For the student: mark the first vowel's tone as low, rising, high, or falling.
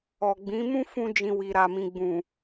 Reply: low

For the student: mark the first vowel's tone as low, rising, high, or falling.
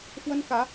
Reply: high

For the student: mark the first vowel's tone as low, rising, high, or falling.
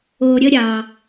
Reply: low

